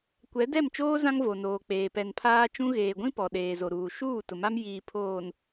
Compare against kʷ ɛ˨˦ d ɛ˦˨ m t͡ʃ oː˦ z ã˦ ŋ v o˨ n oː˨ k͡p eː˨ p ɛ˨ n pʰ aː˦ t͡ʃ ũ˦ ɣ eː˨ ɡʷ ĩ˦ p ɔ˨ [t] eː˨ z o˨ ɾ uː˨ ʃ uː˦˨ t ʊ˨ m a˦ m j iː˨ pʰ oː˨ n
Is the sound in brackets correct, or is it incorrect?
incorrect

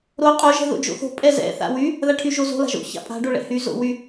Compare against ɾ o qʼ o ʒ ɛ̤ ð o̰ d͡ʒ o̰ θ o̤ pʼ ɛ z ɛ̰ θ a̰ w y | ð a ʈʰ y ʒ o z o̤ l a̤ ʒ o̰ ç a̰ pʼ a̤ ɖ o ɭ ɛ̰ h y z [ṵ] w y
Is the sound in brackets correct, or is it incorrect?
incorrect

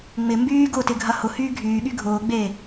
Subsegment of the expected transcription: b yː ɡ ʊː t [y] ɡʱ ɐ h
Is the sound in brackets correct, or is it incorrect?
incorrect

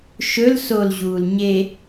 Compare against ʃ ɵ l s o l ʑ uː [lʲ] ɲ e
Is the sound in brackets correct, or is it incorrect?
incorrect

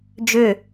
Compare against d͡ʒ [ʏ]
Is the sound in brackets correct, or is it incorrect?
correct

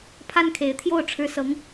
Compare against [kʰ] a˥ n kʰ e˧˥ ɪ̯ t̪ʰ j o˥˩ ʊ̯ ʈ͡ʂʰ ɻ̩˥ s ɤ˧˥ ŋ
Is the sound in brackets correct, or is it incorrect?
incorrect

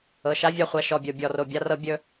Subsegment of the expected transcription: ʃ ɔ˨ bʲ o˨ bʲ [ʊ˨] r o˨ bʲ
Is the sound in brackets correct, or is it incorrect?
incorrect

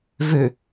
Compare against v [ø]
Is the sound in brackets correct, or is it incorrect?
correct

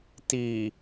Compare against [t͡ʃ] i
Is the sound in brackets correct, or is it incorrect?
incorrect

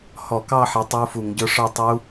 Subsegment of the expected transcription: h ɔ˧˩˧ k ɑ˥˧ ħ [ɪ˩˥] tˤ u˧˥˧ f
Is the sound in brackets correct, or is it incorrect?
correct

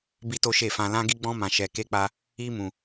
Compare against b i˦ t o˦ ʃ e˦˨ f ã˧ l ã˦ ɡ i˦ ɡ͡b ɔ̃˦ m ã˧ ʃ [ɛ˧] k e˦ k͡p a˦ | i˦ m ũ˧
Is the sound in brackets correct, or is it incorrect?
correct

